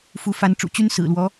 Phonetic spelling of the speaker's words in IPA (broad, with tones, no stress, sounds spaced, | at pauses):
f u˨˦ f a˨˦ n ʈ͡ʂ ṵ˨˩ t͡ɕ y˦ n s ɹ̩˨˩ l w ɔ˨˦